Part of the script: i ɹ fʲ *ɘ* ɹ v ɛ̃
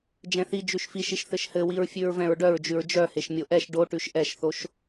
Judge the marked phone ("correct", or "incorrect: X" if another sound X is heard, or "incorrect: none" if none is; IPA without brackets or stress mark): incorrect: ʉ